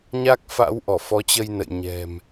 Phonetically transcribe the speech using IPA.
ɲ a˦˥ k̚ f a̰˧˥ w ʔ ɔ˧˩ f ɔ˨˦ t͡ɕ ə˧ j n ə̰˧˨ j ɲ ɛ̤˨˩ m

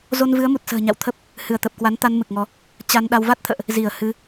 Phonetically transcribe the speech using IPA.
z o˧ n v ɨ˨˦ ə̯ m u˨˩ t̚ s ə̤ː˨˩ ɲ a̰˧˨ w t̪ʰ ə˦˥ p̚ | h ɨ˧˩ ə̯ t̪ ə˨˩ p̚ k w a˨˦ n t̪ a˧ n m ɨ˨˩ k̚ ŋ ɔ˨˦ | t͡ɕ a˧ n ɗ a˧ w v a˦˥ t̚ t̪ʰ ə̰ː˧˨ ʔ | z i˧˩ ə̯ h ɨ˨˦

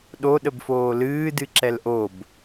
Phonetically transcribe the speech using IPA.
ɗ o ɗ ə b f oː l ɨː d ɨ ǁ ɛ l ʔ o b

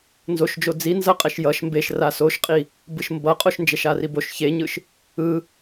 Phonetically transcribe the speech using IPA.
n z o ʃ d͡ʒ o d͡z i n z ʌ qʼ ɛ ʃ j ʌ ʃ m b e ʃ r a s o ʃ qʼ i | b ɯ ʃ m b ʌ qʼ o ʃ n d͡ʒ ɛ ʃ a r i b o ʃ ç e ɲ ɯ ʃ | ɯ

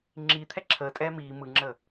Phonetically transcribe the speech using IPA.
ŋ͡ǁ iː t̪ʰ ɛ ǁʰ əː tʼ ɛː m iː m ɯ ŋ͡ǁ əː

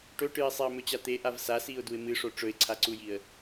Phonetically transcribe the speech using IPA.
ʈ ɵ ʈ ɨ ɪ̯ sˤ e ə̯ m ɵ t͡ɕ a t̪ e ʔ a v s a s i ʊ̯ d u ɪ̯ m ɨ ʂ o ʈ͡ʂ ɵ ɪ̯ ǀʰ a ǀ u j i ə̯

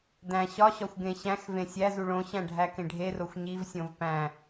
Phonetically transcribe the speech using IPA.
d æ̃ ɕ ɒ ɕ ɒ xʷ ɡ ẽ ɕ æ̃ x v ẽ sʲ æ z u ɭ õ ɕ æ̃ ɖʱ æ k ẽ ɖʱ e r o xʷ ɲ i v sʲ õ v p æ̃

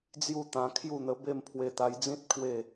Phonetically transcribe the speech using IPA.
d͡z j u˥˧ t̪ ã˧ kʰ j u˥˧ n̪ ə˧ b e˥˧ m pʰ w e˧ t̪ a˧ j d͡z ĩ˦ t̚ pʰ w e˥˧

